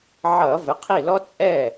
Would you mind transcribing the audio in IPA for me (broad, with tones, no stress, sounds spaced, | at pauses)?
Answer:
ʕ ʌ˧˩˧ v ɘ˩˧˩ qʰ i˥˩ l ɔ˥ t͡sʼ ɛ˥˩